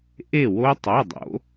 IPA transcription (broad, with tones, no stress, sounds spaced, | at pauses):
ʔ e˥˩ w o˦˥ tˤ ɵ˩˧˩ dˤ o̰˩˧